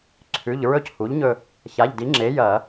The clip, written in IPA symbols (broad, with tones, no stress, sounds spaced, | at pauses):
ǀʰ ʉ˩˧˩ ʎ ɹ ɵ˦˨ c h u˩˥ ʎ ɲ ɵ˦˨ | ç a˩˧˩ ʎ d i˩˥ ŋ͡ǁ e˩˥ j ɐ˧˩˧